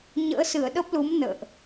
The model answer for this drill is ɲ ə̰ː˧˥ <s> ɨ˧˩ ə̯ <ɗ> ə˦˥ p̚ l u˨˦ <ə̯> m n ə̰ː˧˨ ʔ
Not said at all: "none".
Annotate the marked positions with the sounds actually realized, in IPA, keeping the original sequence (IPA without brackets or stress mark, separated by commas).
s, ɗ, none